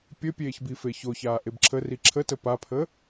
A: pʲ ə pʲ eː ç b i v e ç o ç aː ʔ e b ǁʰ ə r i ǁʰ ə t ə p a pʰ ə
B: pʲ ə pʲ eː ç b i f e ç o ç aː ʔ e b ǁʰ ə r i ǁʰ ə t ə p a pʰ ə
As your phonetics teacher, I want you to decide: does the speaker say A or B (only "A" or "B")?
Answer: B